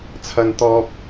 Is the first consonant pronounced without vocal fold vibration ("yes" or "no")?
yes